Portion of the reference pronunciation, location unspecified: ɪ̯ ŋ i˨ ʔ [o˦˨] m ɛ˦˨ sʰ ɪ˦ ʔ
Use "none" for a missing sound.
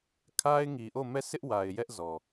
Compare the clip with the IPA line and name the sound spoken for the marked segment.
o˦˨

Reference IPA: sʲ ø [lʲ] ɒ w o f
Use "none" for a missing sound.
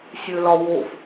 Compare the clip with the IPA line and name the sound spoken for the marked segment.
l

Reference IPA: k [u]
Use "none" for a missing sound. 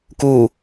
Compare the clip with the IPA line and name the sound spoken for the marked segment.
u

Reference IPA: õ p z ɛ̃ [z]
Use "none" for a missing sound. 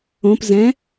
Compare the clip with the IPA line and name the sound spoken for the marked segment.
none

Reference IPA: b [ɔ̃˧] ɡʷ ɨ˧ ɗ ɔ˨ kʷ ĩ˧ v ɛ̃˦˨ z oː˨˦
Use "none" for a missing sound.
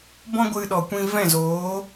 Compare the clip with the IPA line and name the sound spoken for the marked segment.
ɔ̃˦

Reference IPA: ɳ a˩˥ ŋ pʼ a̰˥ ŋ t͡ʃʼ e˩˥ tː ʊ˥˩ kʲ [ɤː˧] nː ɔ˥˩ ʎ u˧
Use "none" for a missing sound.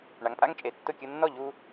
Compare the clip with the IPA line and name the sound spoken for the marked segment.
ɤ˧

